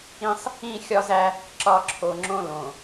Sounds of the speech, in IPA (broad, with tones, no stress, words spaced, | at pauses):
ĩ˦sˤ | ĩ˦˨xʲɒ˦zæ˦ | ǁɒ˨ ǁʰo˨ŋ͡ǁõ˦lõ˨